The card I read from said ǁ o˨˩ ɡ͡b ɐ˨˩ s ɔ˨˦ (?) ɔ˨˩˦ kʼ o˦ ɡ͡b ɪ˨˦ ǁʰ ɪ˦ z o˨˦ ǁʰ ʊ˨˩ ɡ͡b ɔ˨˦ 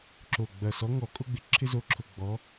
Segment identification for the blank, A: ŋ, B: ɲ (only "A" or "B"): A